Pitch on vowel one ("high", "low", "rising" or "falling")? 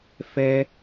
high